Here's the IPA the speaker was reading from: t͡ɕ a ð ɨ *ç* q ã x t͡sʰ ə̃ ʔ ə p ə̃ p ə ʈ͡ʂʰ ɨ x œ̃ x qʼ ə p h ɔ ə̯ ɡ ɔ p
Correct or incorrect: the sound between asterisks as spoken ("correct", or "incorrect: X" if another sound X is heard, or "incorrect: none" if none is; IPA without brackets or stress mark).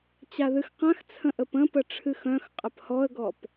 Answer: incorrect: x